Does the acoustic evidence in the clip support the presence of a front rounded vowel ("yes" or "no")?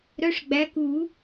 yes